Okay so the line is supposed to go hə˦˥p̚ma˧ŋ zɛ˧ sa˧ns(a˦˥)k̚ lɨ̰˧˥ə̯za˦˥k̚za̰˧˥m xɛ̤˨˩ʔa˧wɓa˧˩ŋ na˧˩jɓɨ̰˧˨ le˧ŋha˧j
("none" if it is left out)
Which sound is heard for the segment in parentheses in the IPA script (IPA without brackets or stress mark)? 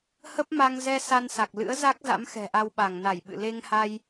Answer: a˨˩